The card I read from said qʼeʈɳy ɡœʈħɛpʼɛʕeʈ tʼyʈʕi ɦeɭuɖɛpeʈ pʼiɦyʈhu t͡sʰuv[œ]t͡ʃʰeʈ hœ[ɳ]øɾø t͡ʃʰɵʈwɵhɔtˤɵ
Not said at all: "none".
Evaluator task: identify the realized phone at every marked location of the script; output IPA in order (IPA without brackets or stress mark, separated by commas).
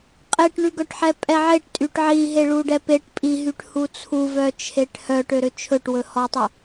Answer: œ, ʈ